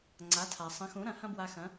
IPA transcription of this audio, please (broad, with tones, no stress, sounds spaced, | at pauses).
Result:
ŋ͡ǀ a˩˥ tʰ a˩ sˤ ɐ̃˩˥ x ũ˩˥ ɾ ɐ̃˧ h ɐ̃˥ b w a˧ x ɐ̃˩˥